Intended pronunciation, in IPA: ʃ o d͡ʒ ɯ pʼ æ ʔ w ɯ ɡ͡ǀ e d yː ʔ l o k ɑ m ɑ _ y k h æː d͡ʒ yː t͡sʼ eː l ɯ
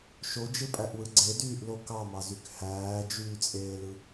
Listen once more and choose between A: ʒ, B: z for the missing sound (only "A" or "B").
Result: B